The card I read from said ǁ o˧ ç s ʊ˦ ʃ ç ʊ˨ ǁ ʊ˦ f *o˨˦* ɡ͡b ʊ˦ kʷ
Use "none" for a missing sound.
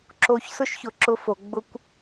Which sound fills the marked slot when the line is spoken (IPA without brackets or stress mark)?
o˨˦